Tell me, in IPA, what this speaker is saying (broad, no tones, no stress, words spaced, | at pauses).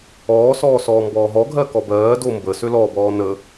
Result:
ɔːsɔːsɔː mbɔːɦɔɡʱɜ kɔbɜː dombə sølɔbɔː nə